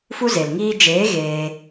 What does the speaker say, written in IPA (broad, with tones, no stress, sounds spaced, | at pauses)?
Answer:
f u˦ z e˨ l ŋ iː˦ d͡ʒ eː˨˦ ɣ eː˧